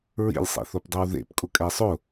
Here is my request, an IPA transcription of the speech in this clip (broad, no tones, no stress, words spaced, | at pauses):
ɹḭlʲsˤḭθopdˤiw ðḛpkʼʊkʼɛ sˤʊ